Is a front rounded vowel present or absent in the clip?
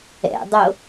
absent